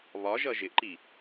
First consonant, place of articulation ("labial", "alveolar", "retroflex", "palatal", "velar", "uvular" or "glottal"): labial